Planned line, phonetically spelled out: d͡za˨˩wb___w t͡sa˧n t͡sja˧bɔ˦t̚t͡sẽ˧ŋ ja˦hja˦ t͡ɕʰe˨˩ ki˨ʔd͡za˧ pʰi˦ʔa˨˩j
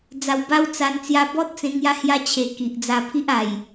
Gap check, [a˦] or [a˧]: a˧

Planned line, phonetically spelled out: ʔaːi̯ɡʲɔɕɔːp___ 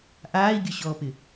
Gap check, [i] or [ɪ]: ɪ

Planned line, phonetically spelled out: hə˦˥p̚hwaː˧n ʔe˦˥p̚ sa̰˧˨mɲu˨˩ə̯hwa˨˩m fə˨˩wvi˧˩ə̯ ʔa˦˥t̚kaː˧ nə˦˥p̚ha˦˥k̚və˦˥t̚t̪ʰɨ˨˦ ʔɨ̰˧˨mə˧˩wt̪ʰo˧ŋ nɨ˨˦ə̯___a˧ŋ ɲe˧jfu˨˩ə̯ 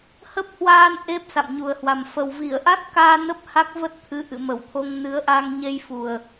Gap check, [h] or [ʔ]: ʔ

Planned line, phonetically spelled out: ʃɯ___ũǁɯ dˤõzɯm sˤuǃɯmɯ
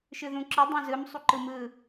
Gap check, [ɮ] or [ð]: ð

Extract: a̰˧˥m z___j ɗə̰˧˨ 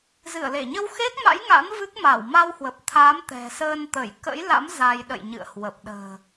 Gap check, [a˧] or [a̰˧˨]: a˧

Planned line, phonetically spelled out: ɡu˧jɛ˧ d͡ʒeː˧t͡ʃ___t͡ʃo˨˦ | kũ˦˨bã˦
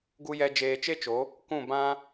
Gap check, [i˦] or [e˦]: e˦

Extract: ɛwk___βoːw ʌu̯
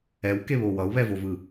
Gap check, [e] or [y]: e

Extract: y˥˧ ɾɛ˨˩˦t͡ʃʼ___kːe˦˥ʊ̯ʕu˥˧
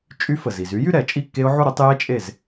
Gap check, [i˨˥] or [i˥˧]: i˥˧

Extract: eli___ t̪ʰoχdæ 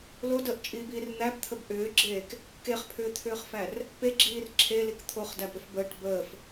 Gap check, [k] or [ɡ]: k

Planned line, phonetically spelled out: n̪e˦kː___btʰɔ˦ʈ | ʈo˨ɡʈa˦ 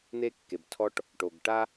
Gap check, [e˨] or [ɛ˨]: e˨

